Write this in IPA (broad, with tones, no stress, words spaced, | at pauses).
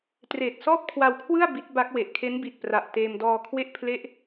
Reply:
treː˨˩t̚sɔː˥˩p̚kʰwa˧wkʰwɯ˥˩a̯ bi˦˥t̚ba˦˥k̚ we˨˩ʔkʰe˦˥nbi˨˩t̚pra˨˩ʔ teː˧mdɔː˧kʰwe˥˩ʔ pʰle˦˥ʔ